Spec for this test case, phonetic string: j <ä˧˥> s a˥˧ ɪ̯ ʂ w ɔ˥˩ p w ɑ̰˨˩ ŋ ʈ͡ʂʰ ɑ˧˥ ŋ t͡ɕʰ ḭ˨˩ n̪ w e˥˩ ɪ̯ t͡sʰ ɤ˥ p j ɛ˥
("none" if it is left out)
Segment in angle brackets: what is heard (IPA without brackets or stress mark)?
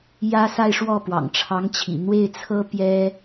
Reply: ä˥